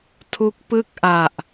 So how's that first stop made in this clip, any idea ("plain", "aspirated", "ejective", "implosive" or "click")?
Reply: aspirated